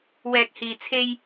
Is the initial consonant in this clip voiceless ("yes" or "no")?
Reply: no